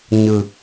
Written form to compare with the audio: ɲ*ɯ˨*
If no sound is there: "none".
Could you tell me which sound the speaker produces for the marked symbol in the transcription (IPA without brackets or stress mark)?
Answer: ɯ˨